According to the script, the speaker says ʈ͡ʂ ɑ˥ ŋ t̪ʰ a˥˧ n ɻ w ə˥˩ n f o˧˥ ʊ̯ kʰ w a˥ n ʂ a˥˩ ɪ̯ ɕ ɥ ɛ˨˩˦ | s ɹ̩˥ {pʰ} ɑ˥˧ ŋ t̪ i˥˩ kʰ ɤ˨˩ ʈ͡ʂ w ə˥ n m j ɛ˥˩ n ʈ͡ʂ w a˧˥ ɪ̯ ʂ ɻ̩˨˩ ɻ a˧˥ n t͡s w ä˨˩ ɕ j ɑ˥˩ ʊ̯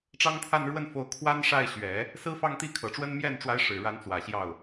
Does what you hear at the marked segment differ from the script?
yes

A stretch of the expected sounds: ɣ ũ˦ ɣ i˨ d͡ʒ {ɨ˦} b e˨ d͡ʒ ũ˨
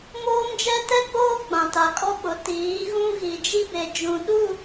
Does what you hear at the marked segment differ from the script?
yes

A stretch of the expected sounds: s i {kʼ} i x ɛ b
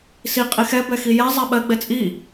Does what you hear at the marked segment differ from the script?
yes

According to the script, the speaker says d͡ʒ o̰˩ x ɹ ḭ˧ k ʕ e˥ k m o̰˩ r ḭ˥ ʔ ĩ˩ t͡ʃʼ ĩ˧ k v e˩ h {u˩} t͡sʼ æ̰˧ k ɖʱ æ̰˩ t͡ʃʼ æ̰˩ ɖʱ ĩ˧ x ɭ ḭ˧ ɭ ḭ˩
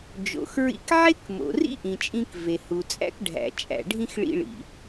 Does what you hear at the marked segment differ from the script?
no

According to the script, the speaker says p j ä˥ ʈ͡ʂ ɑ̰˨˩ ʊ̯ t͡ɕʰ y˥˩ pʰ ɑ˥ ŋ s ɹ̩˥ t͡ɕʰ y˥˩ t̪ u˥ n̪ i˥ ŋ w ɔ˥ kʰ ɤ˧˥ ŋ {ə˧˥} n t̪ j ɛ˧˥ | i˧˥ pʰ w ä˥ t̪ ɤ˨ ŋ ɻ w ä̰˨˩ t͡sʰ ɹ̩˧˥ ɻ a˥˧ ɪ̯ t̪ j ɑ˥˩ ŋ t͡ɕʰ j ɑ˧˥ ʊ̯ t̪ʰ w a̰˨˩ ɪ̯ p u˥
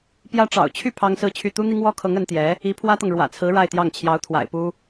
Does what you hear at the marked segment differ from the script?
no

